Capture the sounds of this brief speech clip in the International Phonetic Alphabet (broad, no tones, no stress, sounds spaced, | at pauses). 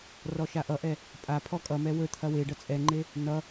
r ɔ ʃ a ʔ ʌ ʔ ɛ | pʼ a pʰ ɔ kʼ ʌ m ɛ w ɵ t̪ʰ ɐ w e ɖ ʌ t͡sʼ ɛ ŋ͡ǃ e | n ʌ